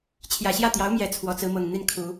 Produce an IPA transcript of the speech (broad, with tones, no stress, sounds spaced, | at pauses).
t͡ɕʰ j ä˨˩ ɕ j ä˥˩ t̪ j ɑ˧˥ ʊ̯ m j ɛ˨˩ t͡sʰ w ɔ˧˥ t͡s ɹ̩˧˥ m ɤ˨˩ ŋ n̪ i˥˩ n kʰ u˨˩˦